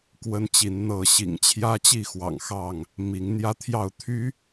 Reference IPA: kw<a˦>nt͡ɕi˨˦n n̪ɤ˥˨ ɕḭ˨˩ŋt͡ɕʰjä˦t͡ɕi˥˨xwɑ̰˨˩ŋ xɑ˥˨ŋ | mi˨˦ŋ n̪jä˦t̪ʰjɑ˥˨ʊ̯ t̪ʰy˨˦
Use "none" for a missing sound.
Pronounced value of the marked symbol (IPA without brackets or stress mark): ə˦